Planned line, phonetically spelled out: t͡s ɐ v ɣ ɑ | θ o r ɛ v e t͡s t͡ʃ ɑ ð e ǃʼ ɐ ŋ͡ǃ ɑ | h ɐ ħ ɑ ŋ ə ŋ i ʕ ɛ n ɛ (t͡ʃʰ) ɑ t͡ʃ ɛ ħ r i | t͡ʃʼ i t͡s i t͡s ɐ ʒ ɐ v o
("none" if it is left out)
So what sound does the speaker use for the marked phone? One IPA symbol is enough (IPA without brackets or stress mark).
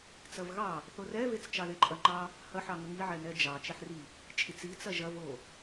d͡ʒ